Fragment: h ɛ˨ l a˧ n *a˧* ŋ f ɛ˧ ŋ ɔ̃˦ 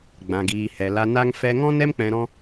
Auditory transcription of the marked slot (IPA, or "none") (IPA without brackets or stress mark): a˧